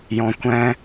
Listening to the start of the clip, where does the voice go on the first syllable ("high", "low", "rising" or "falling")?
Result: low